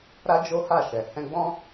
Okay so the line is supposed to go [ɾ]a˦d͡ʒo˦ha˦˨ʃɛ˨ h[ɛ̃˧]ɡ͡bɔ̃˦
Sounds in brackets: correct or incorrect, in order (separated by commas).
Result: correct, correct